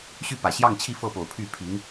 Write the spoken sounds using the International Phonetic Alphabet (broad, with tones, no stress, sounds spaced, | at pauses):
ɕ y˥˩ p ä˨˩ ɕ j ɑ˥˧ ŋ t͡ɕʰ i˥˧ f ɤ˥˩ p o˨˩ ʊ̯ pʰ y˥˩ pʰ i˧˥ ŋ